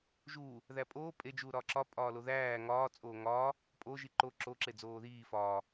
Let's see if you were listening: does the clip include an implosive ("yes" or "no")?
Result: no